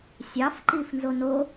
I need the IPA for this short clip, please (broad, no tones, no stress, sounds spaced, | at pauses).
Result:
sʲ ɑ f ǃ i f n z o n o